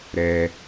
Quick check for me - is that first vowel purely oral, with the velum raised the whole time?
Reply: yes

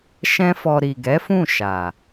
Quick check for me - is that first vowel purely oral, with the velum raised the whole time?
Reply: no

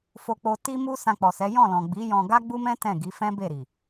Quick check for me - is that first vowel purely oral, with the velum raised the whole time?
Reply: yes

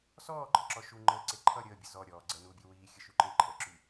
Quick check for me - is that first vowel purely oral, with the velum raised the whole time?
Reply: yes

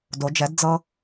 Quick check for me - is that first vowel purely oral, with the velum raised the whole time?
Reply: yes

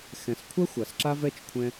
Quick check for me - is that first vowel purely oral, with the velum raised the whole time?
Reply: no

